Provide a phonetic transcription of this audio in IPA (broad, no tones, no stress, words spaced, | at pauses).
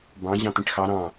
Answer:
bɑ̃ ʑɑ̃t̪ĩʈxɑ ɾɑ̃